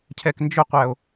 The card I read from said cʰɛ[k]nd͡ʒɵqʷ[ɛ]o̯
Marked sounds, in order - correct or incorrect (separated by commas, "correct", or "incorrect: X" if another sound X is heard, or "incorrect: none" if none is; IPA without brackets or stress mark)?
correct, incorrect: æ